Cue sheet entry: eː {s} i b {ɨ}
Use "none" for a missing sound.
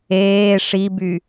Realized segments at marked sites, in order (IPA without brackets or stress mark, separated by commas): ʂ, y